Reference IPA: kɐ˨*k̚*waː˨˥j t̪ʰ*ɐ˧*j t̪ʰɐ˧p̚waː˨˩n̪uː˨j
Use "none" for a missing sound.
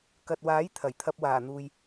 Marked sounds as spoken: t̚, ɐ˨˩

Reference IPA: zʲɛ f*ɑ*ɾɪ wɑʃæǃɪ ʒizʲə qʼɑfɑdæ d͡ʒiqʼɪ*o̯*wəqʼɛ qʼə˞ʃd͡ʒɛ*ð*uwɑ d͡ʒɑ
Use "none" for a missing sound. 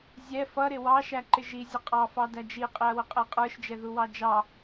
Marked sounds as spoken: ʌ, ɐ̯, ð

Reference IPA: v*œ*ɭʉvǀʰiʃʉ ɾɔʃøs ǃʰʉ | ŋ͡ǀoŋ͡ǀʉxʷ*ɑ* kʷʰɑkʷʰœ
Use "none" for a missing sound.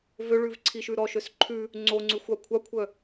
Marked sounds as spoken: ø, ɑ

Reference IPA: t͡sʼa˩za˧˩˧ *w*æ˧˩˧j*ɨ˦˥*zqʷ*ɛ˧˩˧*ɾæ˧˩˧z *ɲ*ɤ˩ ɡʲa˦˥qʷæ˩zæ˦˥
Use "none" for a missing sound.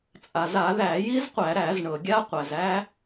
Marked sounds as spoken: ð, i˦˥, æ˧˩˧, ɳ

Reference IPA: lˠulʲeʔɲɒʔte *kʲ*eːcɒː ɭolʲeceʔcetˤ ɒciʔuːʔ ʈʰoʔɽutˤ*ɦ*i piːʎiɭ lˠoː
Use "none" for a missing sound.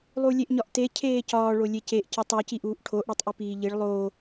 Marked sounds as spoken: cʰ, ʔ

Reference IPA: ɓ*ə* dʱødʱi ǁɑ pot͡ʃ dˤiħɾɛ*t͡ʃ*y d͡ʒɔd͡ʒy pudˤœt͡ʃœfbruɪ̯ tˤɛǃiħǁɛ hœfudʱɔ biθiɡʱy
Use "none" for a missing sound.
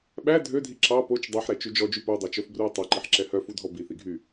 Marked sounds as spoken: æ, t͡ʃ

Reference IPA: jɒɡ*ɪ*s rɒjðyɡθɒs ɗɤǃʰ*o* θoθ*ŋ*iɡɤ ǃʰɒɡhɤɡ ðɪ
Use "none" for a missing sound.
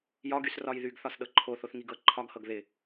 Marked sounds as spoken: y, o, ŋ

